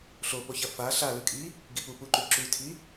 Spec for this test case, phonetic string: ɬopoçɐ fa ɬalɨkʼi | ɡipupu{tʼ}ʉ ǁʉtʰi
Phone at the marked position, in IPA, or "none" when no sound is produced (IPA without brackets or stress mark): ǃ